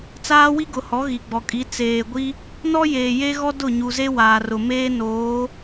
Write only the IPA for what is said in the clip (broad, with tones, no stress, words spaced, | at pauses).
t͡saː˦wi˦ɡʊ˨hɔ˨˦ ɣi˨ɡ͡bɔ˨kʼi˨˦ t͡seː˨ɡʷi˦ | nɔ˦jeː˨ je˦ɣɔ˦ dʊ˦˨ɲu˨ze˦ waː˨rʊ˨meː˦ noː˨˦